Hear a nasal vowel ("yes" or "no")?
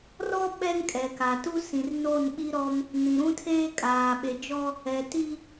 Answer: yes